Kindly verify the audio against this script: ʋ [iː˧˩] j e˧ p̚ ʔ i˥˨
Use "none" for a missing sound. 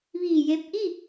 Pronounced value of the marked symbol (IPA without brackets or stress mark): iː˧˩